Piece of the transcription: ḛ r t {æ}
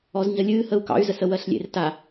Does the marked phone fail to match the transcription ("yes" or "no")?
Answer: yes